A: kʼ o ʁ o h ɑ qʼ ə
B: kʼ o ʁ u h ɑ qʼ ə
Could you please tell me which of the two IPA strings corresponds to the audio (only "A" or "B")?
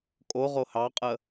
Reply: A